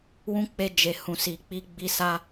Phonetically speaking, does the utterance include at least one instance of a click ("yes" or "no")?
no